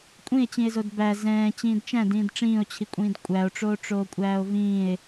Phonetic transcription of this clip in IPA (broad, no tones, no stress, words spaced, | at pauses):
kʷʼĩe̯t͡ɕĩe̯zod bæ zɛ̃ː t͡ɕĩːdt͡ʃæ̃d ĩːdʈ͡ʂĩːo̯t͡ɕʰikʷʼĩːd kʷʼæo̯ʈ͡ʂoː ʈ͡ʂoːkʷʼæːo̯vĩːe̯